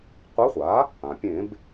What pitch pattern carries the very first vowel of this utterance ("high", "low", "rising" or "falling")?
rising